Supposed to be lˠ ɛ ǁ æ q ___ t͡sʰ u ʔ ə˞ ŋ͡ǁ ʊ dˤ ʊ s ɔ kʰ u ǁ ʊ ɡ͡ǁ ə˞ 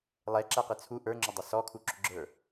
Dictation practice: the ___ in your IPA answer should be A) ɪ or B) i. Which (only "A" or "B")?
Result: A